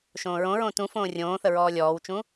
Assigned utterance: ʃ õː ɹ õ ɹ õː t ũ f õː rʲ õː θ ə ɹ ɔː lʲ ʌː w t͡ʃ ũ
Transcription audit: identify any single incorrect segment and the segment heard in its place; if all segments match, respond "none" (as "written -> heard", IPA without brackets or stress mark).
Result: ʌː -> ɔː